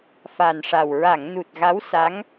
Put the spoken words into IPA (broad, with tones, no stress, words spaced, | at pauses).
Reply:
fa˨˩nʂa˨˩w ɹa˨˩˨ŋnu˨˩t̚ ɣa˧˥wsa˧˥ŋ